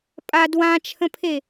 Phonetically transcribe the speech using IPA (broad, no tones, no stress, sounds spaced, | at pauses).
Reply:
pʼ a d w ã t͡ʃʰ ə̃ pʰ e